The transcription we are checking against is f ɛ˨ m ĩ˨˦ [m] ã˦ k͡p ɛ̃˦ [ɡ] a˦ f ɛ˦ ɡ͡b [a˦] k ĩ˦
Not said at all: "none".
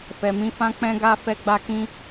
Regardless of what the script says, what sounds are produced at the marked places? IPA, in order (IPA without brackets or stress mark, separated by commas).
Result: f, ɡ, a˦